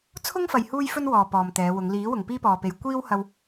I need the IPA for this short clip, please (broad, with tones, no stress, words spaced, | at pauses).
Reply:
t͡sʰʊ˥ŋfɐ˨j huː˥jfɵ˥nwɔː˨ pɔː˨mt̪ɛː˨˧wʊ˨˧ŋ liː˨˥ wʊ˨ŋpiː˥pɔː˨pe˨j kʷiː˥whɐ˧w